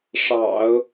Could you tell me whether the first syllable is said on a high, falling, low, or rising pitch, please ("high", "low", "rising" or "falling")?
low